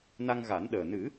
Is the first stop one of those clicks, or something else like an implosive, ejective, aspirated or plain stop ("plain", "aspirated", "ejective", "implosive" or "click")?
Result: implosive